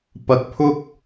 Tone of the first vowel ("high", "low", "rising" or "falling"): low